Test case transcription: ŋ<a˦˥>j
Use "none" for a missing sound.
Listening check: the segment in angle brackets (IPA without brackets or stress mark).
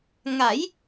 a˩˦